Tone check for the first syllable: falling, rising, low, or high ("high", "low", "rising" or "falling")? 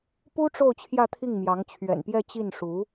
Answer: high